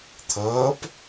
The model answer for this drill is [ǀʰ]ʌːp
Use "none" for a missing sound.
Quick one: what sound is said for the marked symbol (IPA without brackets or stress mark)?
t̪ʰ